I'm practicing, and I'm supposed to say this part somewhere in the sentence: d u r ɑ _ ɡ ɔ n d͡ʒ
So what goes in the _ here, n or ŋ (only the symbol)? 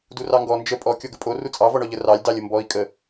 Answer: ŋ